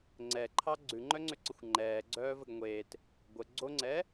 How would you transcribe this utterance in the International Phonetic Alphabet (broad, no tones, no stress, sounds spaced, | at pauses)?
ŋ͡ǀ ɛ ǃʰ ɑ ɡ͡ǀ ʉ ŋ͡ǃ œ ŋ͡ǀ ʏ ǀ ə xʷ ŋ͡ǃ ɛː ɡ͡ǀ œː v ə ɡ ŋʷ eː t | ɡʷ ə ɡ͡ǀ o ŋ͡ǀ ɛː